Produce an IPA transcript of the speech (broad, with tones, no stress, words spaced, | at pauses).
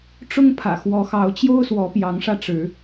ʈ͡ʂʊ˦ŋpʰä̰˨˩ xwɔ˨˦xɑ˨˦ʊ̯t͡ɕjo˦ʊ̯swɔ˨˦ pjɑ˨˦ŋʂä˧ʈ͡ʂɻ̩˨˦